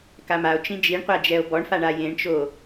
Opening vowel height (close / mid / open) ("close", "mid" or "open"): open